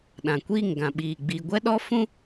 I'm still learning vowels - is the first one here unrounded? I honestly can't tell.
yes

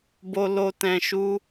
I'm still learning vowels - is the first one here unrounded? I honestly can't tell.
no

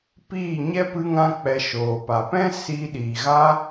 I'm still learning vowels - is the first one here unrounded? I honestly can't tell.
yes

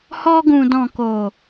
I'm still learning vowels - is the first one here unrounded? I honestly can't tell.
no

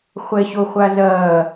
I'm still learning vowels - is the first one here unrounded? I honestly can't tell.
yes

